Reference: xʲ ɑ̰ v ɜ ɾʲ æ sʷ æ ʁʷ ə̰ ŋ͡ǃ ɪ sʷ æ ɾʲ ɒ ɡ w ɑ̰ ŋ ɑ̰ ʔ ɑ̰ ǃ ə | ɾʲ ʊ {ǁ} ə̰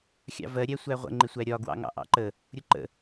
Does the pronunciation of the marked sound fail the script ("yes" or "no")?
yes